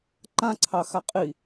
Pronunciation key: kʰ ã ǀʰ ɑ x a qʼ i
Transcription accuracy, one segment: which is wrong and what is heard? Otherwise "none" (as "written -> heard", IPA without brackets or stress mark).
kʰ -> ǃ